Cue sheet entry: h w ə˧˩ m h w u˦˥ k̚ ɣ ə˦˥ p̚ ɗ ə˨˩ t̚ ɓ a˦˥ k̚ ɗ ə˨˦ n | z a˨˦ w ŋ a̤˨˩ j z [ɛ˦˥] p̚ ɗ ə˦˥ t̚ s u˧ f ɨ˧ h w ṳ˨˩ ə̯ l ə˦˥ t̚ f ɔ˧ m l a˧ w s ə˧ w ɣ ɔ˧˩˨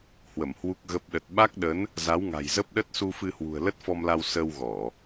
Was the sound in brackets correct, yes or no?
no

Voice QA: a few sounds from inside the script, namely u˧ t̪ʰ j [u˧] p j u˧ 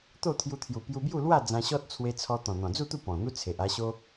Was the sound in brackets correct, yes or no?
no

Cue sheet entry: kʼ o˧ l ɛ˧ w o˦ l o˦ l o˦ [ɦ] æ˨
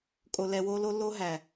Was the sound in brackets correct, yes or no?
yes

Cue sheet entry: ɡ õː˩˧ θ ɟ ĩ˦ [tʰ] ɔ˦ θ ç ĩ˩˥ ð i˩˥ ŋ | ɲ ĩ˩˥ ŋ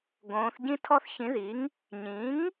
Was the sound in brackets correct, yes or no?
yes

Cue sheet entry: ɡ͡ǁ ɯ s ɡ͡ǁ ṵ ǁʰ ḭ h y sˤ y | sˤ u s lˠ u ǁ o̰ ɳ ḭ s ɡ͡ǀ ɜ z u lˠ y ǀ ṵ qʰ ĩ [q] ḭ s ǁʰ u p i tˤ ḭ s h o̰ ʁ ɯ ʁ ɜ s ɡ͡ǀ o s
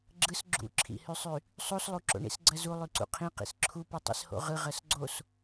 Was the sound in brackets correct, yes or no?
yes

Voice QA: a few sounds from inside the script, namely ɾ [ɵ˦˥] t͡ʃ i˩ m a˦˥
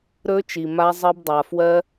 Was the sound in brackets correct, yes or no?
yes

